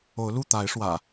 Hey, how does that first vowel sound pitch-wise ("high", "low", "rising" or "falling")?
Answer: rising